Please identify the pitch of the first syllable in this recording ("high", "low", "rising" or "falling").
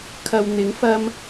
low